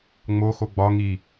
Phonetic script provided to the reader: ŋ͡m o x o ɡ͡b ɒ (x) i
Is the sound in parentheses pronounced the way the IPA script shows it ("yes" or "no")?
no